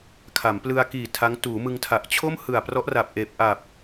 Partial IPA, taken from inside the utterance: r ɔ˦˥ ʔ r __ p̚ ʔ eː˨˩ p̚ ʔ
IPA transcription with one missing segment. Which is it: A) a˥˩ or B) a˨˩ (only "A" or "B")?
B